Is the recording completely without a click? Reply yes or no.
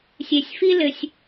yes